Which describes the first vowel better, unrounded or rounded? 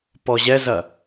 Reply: rounded